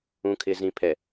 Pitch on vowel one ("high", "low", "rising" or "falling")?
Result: low